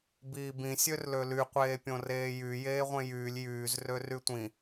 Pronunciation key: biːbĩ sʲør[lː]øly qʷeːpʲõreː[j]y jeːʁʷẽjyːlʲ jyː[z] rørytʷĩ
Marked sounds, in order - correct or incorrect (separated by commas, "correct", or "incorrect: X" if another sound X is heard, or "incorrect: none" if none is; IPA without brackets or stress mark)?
incorrect: l, correct, correct